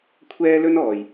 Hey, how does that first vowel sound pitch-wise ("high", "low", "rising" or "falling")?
high